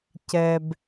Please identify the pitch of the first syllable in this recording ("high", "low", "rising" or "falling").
high